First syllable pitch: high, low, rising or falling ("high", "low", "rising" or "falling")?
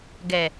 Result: low